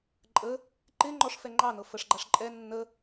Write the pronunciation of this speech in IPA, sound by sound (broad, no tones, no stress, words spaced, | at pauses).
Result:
ǃʼə | ǃɪ ŋ͡ǃɔʂfɛ ŋ͡ǃɑnɤ fəʂɡ͡ǃaʂ ǃʼɛ nːə